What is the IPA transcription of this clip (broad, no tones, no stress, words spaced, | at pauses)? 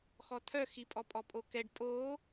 xɔt̪ʰœxipʼɔ pʼɔpʼokɛɖ pʼo